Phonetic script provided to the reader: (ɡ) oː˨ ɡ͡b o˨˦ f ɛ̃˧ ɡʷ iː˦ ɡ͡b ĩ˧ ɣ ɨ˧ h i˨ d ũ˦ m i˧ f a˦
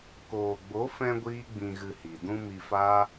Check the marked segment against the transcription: incorrect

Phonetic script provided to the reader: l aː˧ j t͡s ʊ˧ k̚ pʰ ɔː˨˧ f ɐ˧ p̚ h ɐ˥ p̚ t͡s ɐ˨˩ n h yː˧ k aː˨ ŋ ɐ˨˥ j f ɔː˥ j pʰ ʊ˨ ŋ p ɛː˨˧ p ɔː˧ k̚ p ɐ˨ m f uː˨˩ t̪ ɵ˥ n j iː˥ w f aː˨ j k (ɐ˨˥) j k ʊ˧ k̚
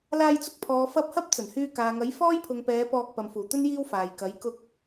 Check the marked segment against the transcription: correct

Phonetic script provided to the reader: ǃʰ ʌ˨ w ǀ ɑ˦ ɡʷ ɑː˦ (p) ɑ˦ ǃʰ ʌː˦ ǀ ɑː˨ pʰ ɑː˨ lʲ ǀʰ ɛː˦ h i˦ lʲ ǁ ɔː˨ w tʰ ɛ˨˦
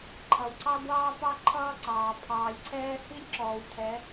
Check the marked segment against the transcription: correct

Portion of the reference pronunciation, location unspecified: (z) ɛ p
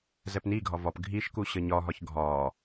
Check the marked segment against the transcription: correct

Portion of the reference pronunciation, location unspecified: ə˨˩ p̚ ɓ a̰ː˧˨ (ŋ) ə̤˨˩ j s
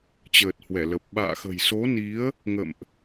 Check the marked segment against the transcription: incorrect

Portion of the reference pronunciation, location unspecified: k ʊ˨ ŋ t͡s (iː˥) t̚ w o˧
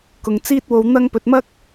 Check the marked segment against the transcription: correct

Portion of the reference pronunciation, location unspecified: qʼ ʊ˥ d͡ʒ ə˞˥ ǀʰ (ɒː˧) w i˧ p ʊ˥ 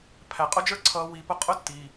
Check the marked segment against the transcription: incorrect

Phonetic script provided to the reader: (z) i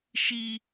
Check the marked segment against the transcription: incorrect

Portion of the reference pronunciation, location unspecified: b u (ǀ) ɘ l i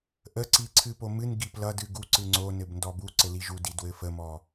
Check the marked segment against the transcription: correct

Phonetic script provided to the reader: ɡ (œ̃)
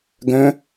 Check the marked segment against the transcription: correct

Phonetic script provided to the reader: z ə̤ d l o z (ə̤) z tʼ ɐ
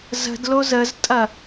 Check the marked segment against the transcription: incorrect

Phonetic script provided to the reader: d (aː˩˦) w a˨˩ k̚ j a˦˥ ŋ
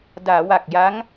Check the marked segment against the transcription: correct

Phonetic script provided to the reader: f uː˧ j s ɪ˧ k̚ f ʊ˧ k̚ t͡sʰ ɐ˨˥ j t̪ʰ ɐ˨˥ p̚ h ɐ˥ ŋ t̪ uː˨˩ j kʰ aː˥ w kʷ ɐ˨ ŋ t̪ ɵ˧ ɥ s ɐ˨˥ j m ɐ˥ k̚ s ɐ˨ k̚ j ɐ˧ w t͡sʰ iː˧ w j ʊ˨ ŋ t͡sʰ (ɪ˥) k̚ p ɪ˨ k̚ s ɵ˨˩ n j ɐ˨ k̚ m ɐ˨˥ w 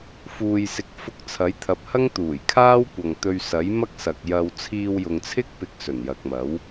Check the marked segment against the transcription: correct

